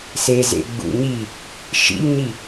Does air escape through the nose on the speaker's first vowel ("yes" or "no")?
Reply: no